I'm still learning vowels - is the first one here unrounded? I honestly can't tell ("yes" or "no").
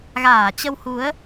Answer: yes